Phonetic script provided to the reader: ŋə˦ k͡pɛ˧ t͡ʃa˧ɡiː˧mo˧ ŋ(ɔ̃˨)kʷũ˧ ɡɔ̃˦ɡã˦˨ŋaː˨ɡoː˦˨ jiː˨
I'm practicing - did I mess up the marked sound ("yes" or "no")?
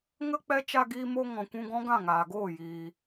no